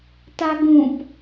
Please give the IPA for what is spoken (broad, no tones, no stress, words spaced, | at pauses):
taɡũp